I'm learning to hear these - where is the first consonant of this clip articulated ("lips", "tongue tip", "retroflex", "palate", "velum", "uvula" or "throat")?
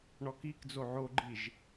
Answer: retroflex